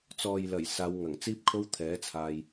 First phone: t͡s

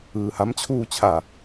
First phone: ɯː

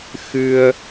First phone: x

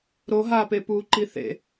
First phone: ɾ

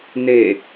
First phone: n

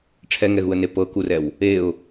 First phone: ʈ͡ʂʰ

